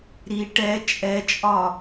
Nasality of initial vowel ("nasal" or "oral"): oral